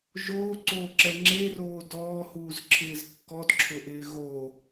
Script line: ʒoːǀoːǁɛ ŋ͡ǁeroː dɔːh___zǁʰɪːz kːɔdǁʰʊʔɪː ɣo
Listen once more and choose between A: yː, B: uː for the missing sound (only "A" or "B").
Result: B